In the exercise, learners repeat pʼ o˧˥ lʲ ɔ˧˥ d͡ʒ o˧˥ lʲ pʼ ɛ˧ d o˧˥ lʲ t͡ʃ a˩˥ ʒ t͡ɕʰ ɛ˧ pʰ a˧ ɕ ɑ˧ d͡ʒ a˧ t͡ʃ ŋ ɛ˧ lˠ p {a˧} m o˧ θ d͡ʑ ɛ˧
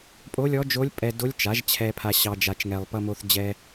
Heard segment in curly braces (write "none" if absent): ʌ˧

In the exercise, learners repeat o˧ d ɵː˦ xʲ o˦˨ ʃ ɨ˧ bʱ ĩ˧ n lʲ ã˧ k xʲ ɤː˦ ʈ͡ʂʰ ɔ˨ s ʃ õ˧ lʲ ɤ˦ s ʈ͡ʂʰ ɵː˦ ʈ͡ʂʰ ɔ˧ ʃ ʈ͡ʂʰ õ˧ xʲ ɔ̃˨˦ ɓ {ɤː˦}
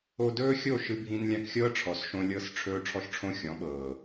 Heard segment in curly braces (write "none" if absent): ɤː˨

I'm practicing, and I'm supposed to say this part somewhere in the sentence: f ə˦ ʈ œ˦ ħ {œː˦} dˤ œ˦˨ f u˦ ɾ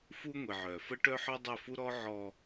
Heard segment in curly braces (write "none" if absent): œ˦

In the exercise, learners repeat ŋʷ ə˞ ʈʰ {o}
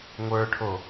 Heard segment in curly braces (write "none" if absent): o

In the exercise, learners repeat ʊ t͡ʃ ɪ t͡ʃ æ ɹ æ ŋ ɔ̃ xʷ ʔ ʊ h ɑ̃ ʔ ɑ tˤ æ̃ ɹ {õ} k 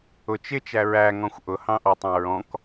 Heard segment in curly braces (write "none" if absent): ɔ̃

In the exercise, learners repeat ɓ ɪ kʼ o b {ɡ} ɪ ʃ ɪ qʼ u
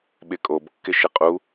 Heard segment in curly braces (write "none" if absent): kː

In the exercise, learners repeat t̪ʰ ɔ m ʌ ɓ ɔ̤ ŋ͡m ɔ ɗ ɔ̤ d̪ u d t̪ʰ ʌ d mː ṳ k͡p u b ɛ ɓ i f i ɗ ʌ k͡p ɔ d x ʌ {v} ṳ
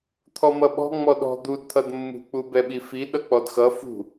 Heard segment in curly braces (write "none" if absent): f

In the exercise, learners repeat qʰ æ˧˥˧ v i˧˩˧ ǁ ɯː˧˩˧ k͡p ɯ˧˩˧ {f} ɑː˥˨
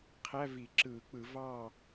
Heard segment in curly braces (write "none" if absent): v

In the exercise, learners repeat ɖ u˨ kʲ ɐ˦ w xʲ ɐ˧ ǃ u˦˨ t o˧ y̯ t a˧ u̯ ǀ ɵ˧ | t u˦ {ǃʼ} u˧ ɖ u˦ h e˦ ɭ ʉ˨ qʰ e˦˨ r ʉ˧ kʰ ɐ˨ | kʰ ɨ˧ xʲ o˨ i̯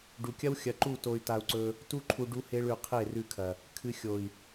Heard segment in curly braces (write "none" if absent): ǃʰ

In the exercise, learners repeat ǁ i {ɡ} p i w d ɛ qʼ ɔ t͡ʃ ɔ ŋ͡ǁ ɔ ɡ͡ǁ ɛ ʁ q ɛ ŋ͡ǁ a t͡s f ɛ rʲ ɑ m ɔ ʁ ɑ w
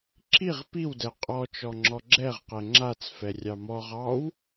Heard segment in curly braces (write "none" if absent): ʁ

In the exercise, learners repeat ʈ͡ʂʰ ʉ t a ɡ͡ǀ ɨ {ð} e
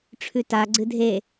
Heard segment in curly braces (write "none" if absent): dʱ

